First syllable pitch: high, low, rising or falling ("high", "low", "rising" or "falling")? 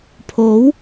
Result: rising